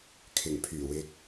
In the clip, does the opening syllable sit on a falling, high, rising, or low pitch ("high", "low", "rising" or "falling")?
low